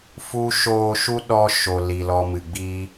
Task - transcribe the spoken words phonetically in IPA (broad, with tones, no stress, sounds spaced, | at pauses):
f u˦ ʃ oː˧ ʃ u˦ ɗ ɔ˧ ʃ o˨ l i˨ l ɔ˧ m ɨ˨ ɡ͡b i˦